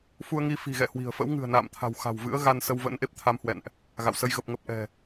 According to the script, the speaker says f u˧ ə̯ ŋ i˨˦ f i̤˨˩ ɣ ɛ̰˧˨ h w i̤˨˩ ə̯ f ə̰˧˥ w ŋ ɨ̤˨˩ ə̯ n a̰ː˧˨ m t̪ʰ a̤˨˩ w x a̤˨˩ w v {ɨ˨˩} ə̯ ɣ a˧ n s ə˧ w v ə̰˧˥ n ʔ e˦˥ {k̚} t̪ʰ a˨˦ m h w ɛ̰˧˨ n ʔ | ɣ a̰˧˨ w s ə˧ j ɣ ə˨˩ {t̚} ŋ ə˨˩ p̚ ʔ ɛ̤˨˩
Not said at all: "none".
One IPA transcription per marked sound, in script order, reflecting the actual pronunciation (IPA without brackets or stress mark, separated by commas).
ɨ̰˧˥, p̚, p̚